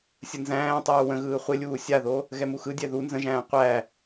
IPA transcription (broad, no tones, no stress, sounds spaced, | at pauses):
sʲ ə n z æ̃ː tˤ uː w ə̃ ɣ ɯː χʷ ɪ lʲ uː sʲ a ð o | ɣ ɛ m u x ɯ dʲ ɛ ð u n z ə̃ ʒ æ̃ː qʷ æ